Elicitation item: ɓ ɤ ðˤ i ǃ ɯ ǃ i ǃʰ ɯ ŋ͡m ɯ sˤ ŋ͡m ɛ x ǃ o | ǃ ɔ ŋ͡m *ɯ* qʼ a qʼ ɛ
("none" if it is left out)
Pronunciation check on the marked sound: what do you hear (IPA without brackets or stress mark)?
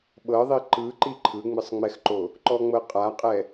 ɤ